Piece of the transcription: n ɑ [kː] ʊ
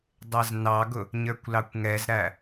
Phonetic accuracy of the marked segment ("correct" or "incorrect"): incorrect